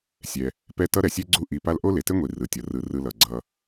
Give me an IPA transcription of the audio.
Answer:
sʲ ɛ˩ | p ɛ˦ t ʌ˥ ɾ ɛ˩ sʲ ɛ˥ ɡ͡ǀ u˦ ʔ i˨ p a˦ l ʔ o˥ l e˩ t e˥ ŋʷ i˩ r ɯ˩ tʲ ʌ˩ r ɯ˨ r ɯ˨ l ʌ˩ ɡ͡ǀ ʌ˨

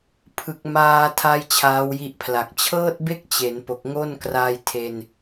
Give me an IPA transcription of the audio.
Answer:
pʰ ɯ˨˩ k̚ m aː˧ tʰ a˥˩ j t͡ɕʰ aː˦˥ w j i˦˥ ʔ pʰ l a˨˩ k̚ t͡ɕʰ ɤː˥˩ t̚ b e˥˩ k̚ t͡ɕ e˩˦ n p o˨˩ k̚ ŋ o˥˩ n k r a˧ j tʰ e˧ n

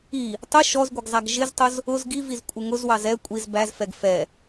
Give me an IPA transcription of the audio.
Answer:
i | tˤ ʊ ʃ ɔ z ɡʷ ə ɡ zˤ æ ɡ ʒ ɪ z tˤ ʊ z | ʊ z ɡ i v i z kʷʼ ɪ ŋ ʊ z w ɑ z ɛ kʷʼ i z b æ z f ɛ ɡ f ɛ

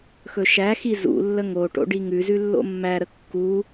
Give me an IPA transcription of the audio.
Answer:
x ɵ ʃ æ x i z ṵ lː ə ŋ o ʈ o̰ ɖ i ŋ ʉ z ʉ lː o̰ mː æ ɾ ə kː u

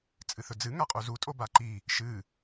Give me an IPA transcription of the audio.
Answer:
t͡sʼ ɨ θ ɵ d͡z ɨ ŋ a qʼ u z u tʼ o b a ǃ i | ʃ ɨ

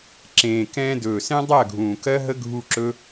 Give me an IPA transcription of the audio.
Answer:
ǁ ẽː˨ k ɛ̃ː˧ d ɵː˨ s ɛ̃˦ dˤ ɜ˦˨ ɡʱ ũː˨ k ɜ˦ ɦ ə˦ ɡʱ u˦ ǁ ɵ˦

